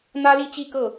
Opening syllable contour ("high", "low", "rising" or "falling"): high